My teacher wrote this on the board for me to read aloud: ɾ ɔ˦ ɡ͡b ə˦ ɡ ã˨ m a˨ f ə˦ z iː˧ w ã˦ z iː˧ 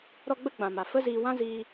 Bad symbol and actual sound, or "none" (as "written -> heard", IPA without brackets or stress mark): ɡ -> ɡ͡b